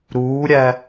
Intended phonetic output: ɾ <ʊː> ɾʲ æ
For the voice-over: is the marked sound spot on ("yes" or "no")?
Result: no